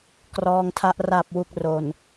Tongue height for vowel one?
mid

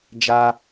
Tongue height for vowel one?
low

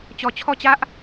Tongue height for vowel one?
mid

